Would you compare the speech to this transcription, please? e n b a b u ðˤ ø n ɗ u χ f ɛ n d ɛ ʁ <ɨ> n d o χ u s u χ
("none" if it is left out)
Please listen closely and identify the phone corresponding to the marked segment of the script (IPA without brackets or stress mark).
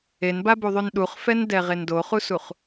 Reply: e